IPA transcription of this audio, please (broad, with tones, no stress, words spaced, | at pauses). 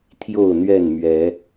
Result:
t̪ʰjo˥˨ʊ̯ n̪ɥɛ˥˨nmɥɛ˨˦